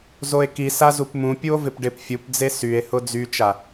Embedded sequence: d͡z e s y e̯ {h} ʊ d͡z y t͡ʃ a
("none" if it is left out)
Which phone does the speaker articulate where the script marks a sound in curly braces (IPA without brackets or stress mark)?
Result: h